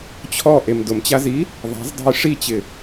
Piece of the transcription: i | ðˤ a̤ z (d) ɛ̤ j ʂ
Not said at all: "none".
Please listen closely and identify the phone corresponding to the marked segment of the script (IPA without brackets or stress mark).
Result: dˤ